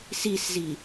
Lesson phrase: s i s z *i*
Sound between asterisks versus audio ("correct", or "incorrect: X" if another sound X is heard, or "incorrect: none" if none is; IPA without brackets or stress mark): correct